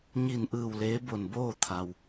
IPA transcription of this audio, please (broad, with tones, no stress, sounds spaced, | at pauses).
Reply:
ɲ i˧˩ n ʔ ɯː˧˩ w l eː˧˥ b o˧˩ n b oː˥˨ t̪ʰ a˩ w